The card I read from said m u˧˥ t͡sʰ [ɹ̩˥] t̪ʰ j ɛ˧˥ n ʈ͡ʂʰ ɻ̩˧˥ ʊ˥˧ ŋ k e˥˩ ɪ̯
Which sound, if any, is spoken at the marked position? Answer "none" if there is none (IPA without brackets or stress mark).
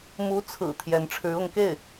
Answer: ɹ̩˨˩